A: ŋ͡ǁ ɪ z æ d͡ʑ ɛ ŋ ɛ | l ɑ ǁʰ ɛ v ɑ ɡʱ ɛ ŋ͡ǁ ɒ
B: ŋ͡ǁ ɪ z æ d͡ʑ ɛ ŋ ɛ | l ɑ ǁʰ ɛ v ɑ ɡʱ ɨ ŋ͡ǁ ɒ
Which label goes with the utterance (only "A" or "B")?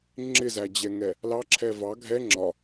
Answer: A